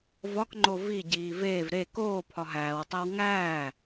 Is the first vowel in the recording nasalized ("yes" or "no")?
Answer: no